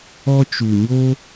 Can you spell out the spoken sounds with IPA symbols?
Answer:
ɔ˧ t͡ʃ u˨ ɲ o˦

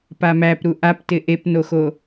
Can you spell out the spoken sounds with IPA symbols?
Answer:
p a m æ p ɾ u ʔ a p t ɪ ʔ e p n o x o

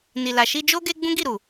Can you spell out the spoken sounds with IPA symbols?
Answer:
n i˨ l a˨ ʃ i˧ d͡ʒ o˦ ɡ e˦ ɡ͡b ũ˦ ɡ i˦˨ ɾ u˨

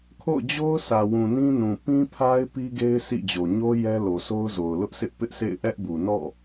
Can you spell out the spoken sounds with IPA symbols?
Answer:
kʰ o̰˦˨ ʊ̯ d͡ʑ o˦ ʊ̯ sʰ ä˨ w ũ˨ n ĩ˦ n ũ˨ p ĩ˦ pʰ a˦ ɪ̯ p i˦ ɡ e˦ ɪ̯ sʰ ḭ˦˨ d͡ʑ o˨ ɲ o˦ j ɛ˦ l o˨ sʰ o˦ ʊ̯ z o˨ ʊ̯ l ʊ˦ ʔ sʰ ɪ˦ ʔ p ɪ˦ ʔ sʰ ḛ˦˨ ɪ̯ ʔ ɛ˦ ʔ b u˨ n ɔ̰˦˨

